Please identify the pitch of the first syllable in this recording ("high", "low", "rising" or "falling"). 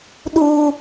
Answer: low